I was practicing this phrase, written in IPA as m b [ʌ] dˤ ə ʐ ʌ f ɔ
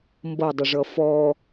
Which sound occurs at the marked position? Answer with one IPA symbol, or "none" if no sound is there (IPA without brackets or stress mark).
ʌ